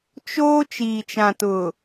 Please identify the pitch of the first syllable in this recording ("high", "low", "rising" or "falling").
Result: high